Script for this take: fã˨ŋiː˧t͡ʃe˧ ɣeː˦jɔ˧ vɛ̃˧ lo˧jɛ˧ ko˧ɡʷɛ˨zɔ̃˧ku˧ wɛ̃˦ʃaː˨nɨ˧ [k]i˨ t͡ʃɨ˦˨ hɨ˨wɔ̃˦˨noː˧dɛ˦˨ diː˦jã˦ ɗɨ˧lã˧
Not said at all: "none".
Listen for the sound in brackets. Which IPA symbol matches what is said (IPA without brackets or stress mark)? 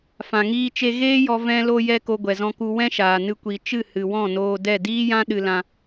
kʷ